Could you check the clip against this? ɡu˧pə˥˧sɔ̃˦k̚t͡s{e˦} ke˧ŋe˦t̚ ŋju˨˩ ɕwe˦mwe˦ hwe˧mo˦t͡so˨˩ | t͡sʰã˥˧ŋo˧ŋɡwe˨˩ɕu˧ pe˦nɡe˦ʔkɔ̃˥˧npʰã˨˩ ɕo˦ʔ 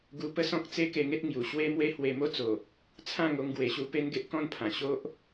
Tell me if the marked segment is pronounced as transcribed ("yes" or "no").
yes